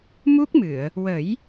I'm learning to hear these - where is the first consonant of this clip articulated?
lips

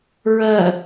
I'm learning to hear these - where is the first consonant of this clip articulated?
tongue tip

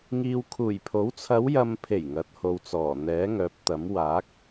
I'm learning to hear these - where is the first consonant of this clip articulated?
velum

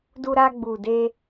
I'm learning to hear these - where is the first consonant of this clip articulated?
tongue tip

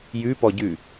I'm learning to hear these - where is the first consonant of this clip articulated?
palate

